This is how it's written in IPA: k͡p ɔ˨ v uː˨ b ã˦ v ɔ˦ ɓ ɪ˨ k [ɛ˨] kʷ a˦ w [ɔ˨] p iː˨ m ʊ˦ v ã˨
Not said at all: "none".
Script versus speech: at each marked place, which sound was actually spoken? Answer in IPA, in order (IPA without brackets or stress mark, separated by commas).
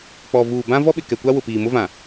ɛ˨, ʊ˨